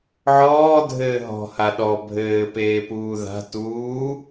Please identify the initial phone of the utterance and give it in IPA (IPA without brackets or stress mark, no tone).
ʕ